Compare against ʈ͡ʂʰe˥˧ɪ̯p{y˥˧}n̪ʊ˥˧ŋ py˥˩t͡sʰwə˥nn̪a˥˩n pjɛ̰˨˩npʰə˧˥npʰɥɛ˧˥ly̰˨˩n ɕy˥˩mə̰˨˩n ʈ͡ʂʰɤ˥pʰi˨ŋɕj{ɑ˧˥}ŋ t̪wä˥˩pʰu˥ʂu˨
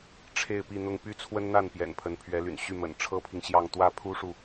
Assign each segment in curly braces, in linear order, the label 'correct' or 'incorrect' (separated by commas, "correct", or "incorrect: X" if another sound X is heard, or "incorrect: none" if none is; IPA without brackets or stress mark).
incorrect: i˥˧, incorrect: ɑ˥˧